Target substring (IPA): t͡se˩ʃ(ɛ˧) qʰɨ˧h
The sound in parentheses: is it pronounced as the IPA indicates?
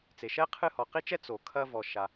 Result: no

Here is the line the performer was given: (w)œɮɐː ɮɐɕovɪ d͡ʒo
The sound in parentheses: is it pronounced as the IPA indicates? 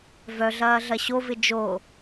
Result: no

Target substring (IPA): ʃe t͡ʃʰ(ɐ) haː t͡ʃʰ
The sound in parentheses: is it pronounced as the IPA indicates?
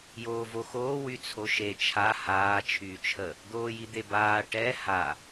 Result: no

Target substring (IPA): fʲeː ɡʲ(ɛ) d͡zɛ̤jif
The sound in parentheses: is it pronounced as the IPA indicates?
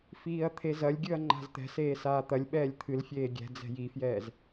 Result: no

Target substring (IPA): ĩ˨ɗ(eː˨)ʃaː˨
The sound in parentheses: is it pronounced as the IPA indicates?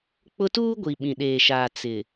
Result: yes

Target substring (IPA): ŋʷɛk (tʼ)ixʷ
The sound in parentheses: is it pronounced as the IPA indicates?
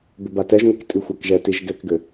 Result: yes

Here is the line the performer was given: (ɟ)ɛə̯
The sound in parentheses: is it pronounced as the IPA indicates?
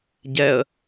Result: yes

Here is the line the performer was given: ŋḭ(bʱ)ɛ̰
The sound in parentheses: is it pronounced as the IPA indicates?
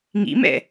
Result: no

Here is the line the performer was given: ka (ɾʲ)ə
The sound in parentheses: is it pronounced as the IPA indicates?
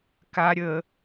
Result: yes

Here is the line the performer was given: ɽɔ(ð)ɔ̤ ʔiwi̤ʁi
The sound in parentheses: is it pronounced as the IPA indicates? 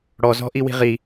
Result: no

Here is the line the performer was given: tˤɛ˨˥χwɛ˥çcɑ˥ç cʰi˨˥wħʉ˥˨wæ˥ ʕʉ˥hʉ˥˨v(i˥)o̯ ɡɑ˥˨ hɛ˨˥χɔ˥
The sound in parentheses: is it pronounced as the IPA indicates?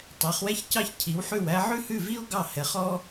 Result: yes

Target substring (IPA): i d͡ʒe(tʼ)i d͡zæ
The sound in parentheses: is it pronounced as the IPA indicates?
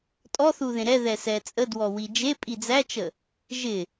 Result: no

